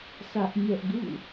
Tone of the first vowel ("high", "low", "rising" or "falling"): high